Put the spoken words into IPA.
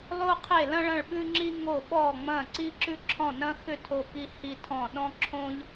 lˠ o˧ qʰ e˧˩ l ɐ̃˧ ɭ ɐ̃˧˩ ɭ ɓ ʉ˧ ŋ͡ǁ i˧ ŋ o˧˩ ɓ ɔ˧˩ ŋ͡m ɐ̃˧˩ ǀ i˧ ǁ ʉ˧ ǁʰ ɔ̃˧˩ n ɐ̃˧ x ʏ˧˩ tʰ o˧˩ k i˧ h i˧ tʰ ɔ̃˧˩ ɗ ɔ̃˧ ǁʰ õ˧ ʎ

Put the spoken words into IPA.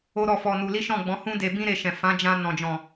o˦ ɾ ɔ˦˨ f ɔ˧ n u˧ l i˦ ʃ ɔ̃˦˨ ɡ͡b ɔ̃˨˦ h ũ˦ d e˧ b ĩ˦ ɾ e˧ ʃ ɛ̃˨ f ã˨˦ d͡ʒ ã˧ n ɔ̃˨ d͡ʒ ɔ̃˨

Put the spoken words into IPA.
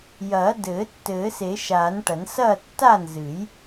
j ɐː˨˩˦ d ɘː˨˩˦ tː ɘː˨˩˦ s e˨˩˦ ʃ aː˨˩˦ n ʈ ɐ˨˩˦ n s ɐː˥˨ tː a˥˨ n z ɨ˨˩˦ j

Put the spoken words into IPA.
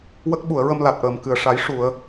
w ə˦˥ k̚ ɓ u˨˩˨ ə̯ ɹ ə˧ m l a˨˩ t̚ ʔ əː˨˩ m k ɨ˨˩˨ ə̯ ʂ a˨˩˦ j ʂ u˨˩˨ ə̯

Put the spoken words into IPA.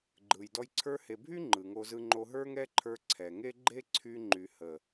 ɡ͡ǃ ɯ˨ j d ɔ˧ j ǀʰ ə˞˧ h e˨ bʱ y˦ ŋ͡ǃ ɯ˨ ŋ o˧ z ɯ˧ ŋ͡ǃ o˧ ɦ ə˞˦ ŋ ɛ˦ ǃʰ ə˞˧ ǀʰ ɛ˨ ŋ e˦ ɡ͡ǃ e˦ ǀʰ y˧ ŋ͡ǃ y˨ h ə˨

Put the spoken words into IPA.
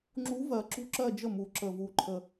ŋ͡ǁ u˧˥ v ɜ˨˩ ǁ ṳ˥˧ ǁ ɜ˥˧ d͡ʒ ə˥˩ m u˨˩ ǁ ə˨˩ v u˨˩ ǃʰ ə˨˩

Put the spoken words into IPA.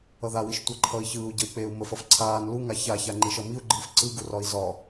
ʌ ð a w i ʃ tʷ ʌ ǃʰ ʌ i̯ ç ɯː u̯ ɟ ʌ i̯ k͡p eː u̯ m ə f ʌ f ǀʰ aː n l u ŋ a ç a ç a ŋ͡ǃ i ʃ ʌ m i u̯ ɡ͡ǃ ɯː f ǀ ɯ ɡ u r ɒ i̯ z ɒ

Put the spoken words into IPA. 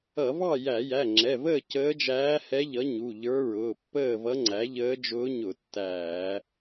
ʌ˧˩˧ v ɑ˥˨ j æ˧˩˧ j æ˩˧˩ ŋ͡ǁ ɛ˩˧˩ v əː˥˨ c əː˧˥ d͡ʒ æː˧˥ h ɛ˧˥ ʎ ʌ˩˥ ɲ u˩˧˩ ʎ ə˞˧˥ ɹ ʊː˩˧˩ pː əː˥˨ v ʌ˧˥ ŋ͡ǀ æ˩˥ ʎ əː˧˥ d͡ʒ ʊː˧˥ ɲ ʊ˧˩˧ tː æː˧˩˧

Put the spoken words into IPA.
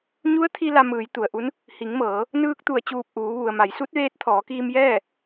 ɲ u˧˥ ə̯ t̪ʰ i˧ l a˧ m ɯː˩˧ j t̪ u˩ ə̯ ʔ u˧˥ n | h i˩˧ ŋ m ɤː˩˧ | n ɯː˧ k̚ t̪ u˧˩ ə̯ t͡ɕ uː˧˩ p̚ ʔ uː˩˧ ʋ u˩ ə̯ m a˩˧ j s u˧˥ t̚ ʋ eː˧˥ t̚ t̪ʰ ɔː˩˧ k iː˧ m j ɛː˥˨

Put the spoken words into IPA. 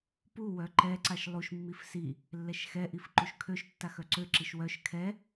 p u w œ ǃ ɛ ǀ a ʃ lˠ u ʃ mː i f s i | lː ɛ ʃ x ɛ ʔ i f ǃ u ʃ kʰ ø ʃ tː a x œ ǀ ø ǁ i ʃ w œ ʃ kʰ ɛ

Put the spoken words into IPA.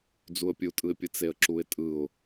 d͡z u ə̯ pʲ u tʼ ɯ ɪ̯ pʲ ɯ t͡s e ə̯ ǁ u ɪ̯ tʼ ɯ ʊ̯

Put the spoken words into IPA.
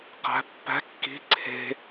q æ̤ pː æ̤ kː i̤ ǀʰ e̤

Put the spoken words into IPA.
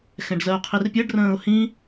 x ɛ̃ ɖ z ɜ ʊ̯ qʰ i r pʲ ɜ ɖ r ə̃ː ʊ̯ h ĩ

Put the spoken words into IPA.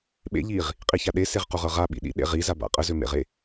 ɓ ḛ ʎ i ʁ | qʼ i ç a ɗ e s e ʁ q u ʁ ɤ ʁ a ɓ ḭ ɗ ḭ ɗ ḛ ʁ i z a b a̰ qʼ ə z ø m ḛ ʁ e

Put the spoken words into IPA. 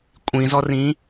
kʷʼ ĩ z ɔ r ĩː

